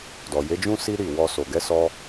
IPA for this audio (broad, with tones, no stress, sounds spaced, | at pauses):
d ɔ˨ j e˨˦ d͡ʒ ũ˦ s i˦ ɾ i˦˨ w ɔ˧ s o˨ ɡ ɛ˨˦ s ɔ˧